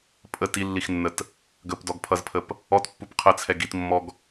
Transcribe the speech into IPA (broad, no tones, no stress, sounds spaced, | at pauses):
pʼ ə t i lː i x nː ə t | ɡ ə p d ɔ ɡ pʰ ʌ z pʰ ə p | ɔ t pː u p qʰ ə t͡sʰ ɛ ɡ i t mː ɔ ɡ